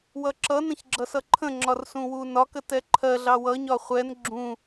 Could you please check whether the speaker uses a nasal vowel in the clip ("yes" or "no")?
yes